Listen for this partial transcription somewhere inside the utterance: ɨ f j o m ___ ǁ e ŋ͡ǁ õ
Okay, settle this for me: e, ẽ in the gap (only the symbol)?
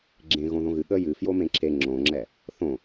ẽ